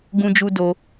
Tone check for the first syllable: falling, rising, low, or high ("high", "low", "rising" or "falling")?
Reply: high